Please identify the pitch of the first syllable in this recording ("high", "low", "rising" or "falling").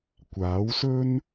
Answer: rising